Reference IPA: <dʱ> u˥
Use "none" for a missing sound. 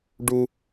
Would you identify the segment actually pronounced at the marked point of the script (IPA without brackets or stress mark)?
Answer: ɖ